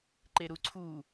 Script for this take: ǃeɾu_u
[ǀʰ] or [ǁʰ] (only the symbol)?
ǀʰ